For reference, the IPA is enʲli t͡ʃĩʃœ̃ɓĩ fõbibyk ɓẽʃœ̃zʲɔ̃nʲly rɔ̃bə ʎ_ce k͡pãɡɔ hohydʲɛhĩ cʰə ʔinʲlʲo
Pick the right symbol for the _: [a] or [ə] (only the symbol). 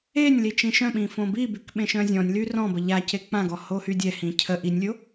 a